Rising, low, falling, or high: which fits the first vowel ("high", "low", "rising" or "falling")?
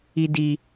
low